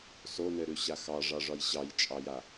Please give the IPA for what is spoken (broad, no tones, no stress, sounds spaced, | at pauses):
s o n ɘ ɾ ʉ ɕ a x ɑ ʐ ɑ ʐ ɒ j ɕ ɑ j t͡ʃʼ ɑ j a